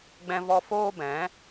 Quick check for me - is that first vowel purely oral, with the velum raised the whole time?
no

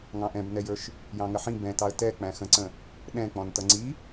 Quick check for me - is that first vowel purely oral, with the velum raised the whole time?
no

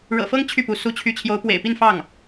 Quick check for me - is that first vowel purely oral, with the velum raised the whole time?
yes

